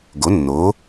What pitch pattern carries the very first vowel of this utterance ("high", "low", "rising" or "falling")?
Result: rising